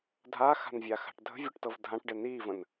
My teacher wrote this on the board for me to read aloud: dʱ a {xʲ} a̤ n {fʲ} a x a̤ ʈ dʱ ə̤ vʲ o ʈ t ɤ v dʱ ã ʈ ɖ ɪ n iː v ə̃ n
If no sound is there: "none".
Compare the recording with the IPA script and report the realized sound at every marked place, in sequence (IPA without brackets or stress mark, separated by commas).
x, vʲ